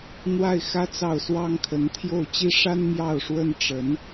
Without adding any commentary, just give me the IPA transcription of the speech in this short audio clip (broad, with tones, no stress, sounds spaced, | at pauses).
n̪ w a˥˩ ɪ̯ x ä˥ t͡s ɑ˥˩ ʊ̯ s w ɑ˥ ŋ kʰ ə˧˥ n t̪ʰ j o˥˩ ʊ̯ t͡ɕ i˥ ʂ a˥ n m j ɑ˥˩ ʊ̯ ʂ w ə˥ n ʈ͡ʂ ə˧˥ n